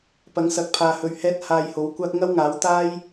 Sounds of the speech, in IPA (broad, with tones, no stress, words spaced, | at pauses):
pɐ˨˥ŋsɐ˨˥k̚pʰaː˨hɵ˨ɥ hɛː˥t̚haː˧jho˨˥w kʷaː˥k̚ ŋɐ˥wŋaː˨˥w t̪aː˥j